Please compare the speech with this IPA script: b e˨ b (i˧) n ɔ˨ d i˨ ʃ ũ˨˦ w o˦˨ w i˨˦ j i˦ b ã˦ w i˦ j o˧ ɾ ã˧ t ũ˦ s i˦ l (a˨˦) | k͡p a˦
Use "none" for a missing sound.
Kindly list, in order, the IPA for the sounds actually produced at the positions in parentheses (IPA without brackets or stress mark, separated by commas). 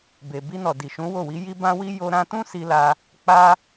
i˧, a˦